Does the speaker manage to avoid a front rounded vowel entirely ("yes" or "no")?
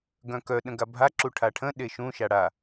no